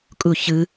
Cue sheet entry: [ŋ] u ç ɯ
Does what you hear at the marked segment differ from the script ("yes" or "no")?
yes